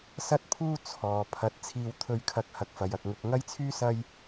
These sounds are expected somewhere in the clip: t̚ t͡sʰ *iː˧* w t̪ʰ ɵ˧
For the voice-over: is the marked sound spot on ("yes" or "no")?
yes